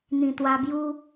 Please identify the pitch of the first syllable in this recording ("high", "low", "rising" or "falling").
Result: low